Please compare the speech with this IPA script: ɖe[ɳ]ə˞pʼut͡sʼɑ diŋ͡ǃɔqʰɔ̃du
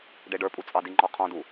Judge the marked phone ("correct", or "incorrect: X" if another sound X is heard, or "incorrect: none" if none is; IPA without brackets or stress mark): incorrect: ɖ